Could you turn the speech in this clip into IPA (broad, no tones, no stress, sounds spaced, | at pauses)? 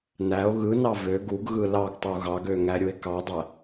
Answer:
n æ o̯ ɣ ɯ n ɑ v ø ɡ u ɡ ɣ ɯ l ɑ ɡ tˤ u ɣ ɑ ɡ ø ŋ æ ɾʲ u e̯ k ɑ dˤ æ